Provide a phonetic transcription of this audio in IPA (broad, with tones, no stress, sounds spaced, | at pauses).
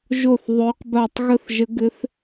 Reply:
ʒ o˥˨ θ ðˤ ø˧˥ q b a˥˨ tˤ ɣ ə˥˨ θ ʒ ə˧˥ ɡ ɘ˧˥ θ